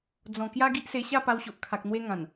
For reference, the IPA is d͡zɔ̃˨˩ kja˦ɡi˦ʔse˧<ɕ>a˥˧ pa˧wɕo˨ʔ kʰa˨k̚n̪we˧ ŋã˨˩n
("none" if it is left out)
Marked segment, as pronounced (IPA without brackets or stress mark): ɕ